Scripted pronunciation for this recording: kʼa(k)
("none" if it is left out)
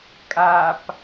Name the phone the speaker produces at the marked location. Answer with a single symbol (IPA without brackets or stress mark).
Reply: p